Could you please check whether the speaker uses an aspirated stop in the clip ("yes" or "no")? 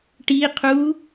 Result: yes